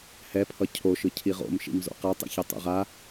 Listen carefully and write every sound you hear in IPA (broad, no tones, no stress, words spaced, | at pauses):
hɛpʰʌ cʰoʃɯ cʰiʁo̰m ʃḭmzo̰qatˤɛ̰ç ʌtˤɛ̰ʁa